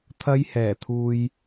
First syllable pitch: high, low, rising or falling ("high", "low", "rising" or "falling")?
high